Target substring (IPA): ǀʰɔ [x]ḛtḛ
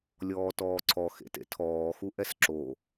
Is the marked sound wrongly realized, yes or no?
no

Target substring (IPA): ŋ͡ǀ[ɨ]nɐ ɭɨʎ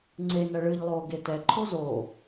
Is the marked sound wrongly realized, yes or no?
yes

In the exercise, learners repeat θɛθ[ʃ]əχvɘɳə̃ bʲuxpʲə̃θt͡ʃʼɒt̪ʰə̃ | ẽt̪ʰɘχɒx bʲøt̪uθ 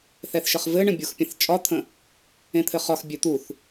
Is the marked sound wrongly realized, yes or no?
no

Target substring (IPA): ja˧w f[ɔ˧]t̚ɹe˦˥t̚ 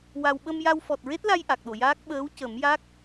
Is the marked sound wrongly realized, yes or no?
yes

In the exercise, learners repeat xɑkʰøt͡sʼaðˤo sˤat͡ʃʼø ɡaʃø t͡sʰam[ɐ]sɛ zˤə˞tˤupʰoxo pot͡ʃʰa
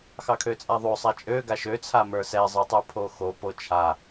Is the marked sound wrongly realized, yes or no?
yes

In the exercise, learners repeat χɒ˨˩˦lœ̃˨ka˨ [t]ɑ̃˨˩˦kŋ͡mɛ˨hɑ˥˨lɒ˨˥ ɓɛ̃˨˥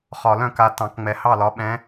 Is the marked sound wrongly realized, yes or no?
no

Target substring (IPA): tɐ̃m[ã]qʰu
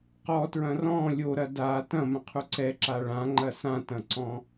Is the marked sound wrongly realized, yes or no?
yes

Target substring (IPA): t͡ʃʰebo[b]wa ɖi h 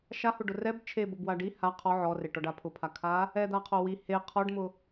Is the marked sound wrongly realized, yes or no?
no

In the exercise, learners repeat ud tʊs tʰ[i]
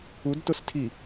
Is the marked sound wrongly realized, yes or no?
no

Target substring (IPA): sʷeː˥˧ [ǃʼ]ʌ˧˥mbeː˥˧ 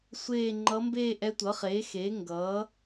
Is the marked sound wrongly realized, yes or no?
yes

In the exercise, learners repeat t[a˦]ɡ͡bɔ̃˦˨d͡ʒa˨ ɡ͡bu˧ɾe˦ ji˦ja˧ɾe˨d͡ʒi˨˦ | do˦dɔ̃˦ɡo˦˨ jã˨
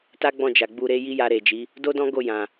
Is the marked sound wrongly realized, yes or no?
no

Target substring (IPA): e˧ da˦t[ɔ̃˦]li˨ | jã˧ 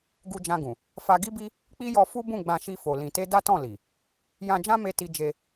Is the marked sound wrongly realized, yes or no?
yes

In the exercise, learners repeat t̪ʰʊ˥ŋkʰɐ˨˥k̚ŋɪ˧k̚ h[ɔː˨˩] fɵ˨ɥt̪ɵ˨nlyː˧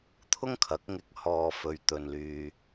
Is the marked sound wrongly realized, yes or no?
yes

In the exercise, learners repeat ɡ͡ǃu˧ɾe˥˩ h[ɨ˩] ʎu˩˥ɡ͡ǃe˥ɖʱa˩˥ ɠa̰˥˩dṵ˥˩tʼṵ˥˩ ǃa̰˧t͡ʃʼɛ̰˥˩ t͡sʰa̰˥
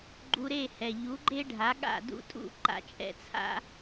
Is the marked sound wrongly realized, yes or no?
yes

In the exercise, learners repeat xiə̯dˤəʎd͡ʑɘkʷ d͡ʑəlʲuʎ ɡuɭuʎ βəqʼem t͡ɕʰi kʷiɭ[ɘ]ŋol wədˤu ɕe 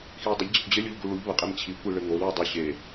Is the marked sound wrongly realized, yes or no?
no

